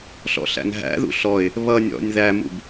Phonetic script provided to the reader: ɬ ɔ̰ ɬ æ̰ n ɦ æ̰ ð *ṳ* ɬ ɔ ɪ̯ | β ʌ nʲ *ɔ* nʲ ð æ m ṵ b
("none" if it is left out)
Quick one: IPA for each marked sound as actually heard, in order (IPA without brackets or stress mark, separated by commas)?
ṵ, ɔ̰